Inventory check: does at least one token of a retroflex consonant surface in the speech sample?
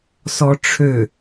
yes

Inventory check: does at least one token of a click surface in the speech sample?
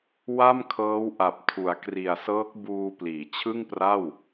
no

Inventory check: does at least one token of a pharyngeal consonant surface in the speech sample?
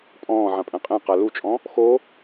yes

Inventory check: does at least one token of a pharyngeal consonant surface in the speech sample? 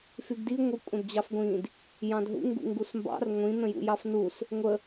no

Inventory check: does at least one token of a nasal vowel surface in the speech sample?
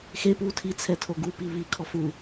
no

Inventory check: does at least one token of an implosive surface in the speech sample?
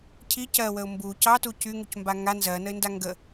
no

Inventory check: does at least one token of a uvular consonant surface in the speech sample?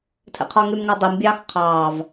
yes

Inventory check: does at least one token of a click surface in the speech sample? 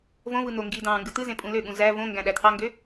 no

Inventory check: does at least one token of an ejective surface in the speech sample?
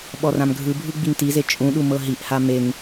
yes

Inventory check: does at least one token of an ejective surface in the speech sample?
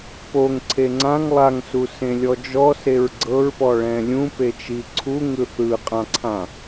yes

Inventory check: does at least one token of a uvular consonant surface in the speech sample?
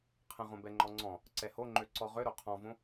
yes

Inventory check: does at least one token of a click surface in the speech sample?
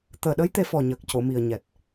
no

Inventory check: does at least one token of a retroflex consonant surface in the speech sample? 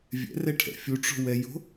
yes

